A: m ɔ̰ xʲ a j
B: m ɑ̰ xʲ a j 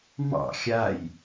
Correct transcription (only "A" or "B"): B